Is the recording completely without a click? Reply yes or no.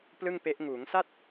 yes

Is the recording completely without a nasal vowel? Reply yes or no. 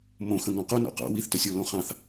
no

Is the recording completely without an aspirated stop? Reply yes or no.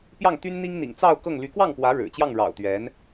yes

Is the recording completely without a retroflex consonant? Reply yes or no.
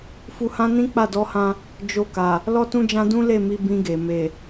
yes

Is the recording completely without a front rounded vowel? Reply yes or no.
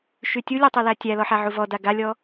no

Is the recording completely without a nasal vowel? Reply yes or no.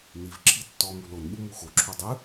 yes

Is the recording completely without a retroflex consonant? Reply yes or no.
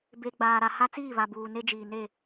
yes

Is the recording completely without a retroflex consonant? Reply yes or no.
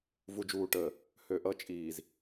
no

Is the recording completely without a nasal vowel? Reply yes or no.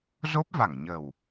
yes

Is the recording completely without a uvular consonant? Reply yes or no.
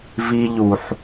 yes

